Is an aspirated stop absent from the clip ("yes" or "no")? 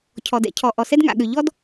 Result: no